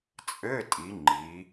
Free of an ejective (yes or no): no